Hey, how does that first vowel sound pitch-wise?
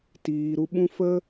low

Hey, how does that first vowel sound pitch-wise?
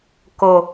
low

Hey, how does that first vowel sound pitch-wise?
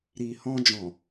low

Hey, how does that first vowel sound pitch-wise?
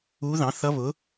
rising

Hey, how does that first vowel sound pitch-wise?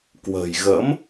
low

